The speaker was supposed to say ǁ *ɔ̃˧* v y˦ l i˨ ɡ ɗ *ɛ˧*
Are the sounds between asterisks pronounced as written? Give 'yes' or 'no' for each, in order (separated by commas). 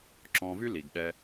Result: yes, yes